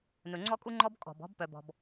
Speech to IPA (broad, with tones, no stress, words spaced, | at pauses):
nɵ˨ŋ͡ǀɔ˦kʼu˦ŋ͡ǃɔ˦b kʼɔ̤˨b ɔ̤˦bpœ˨bɔ̤˨b